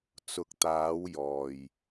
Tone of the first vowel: low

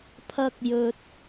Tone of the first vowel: high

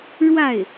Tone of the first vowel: falling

